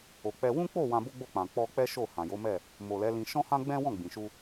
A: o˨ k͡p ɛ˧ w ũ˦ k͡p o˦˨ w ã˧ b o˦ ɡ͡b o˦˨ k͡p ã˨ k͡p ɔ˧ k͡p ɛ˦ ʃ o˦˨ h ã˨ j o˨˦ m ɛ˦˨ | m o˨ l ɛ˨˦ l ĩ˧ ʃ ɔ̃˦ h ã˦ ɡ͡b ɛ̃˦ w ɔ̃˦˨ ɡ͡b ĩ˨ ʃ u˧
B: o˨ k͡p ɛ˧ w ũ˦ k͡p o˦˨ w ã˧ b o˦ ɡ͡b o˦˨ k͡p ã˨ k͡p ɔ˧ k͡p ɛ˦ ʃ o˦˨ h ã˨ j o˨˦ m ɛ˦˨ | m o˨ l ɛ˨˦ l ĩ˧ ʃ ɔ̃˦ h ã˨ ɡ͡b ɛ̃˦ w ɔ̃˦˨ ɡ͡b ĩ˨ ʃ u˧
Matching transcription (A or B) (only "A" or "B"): A